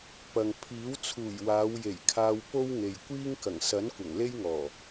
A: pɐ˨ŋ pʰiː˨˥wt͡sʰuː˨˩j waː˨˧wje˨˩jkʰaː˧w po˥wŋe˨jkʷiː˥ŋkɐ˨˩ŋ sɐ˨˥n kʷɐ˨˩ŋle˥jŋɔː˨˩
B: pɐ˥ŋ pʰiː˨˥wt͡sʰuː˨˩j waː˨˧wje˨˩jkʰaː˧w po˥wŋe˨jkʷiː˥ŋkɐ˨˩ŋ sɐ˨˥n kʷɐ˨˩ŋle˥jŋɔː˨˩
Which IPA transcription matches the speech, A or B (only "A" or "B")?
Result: A